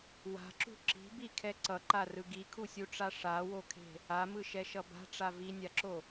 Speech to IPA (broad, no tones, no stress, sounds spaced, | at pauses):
w a̤ ǁ ṳ ǁ i̤ b i kʰ ɛ ǀ ʌ ǃ a r ɯ ɡ i kʰ u sʲ u ʈ͡ʂ a ʂ a w o kʰ e̤ | a m ɯ ʃ ɛ ʃ ʌ b a̤ ʈ͡ʂ a v i nʲ a ǁ o